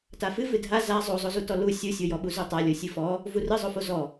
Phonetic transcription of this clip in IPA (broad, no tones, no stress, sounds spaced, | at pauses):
t a f ɨ v ɨ dʱ a z a zˤ o zˤ o z u t ɔ l u sʲ u sʲ o j ɔ ɓ u z u tˤ a lʲ o sʲ ɨ f ɔ | v u r ɨ zˤ o f o z ɔ